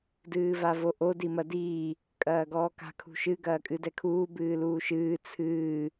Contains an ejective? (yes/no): yes